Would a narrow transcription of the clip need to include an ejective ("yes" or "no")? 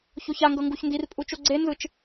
yes